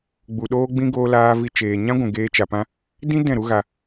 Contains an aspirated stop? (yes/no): no